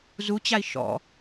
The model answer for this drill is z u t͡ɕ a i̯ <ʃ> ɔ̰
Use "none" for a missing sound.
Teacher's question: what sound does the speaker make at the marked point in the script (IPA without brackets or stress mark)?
ʃ